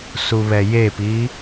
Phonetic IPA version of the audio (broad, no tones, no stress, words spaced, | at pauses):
suβɛjepi